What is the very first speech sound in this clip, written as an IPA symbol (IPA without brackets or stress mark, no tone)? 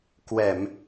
k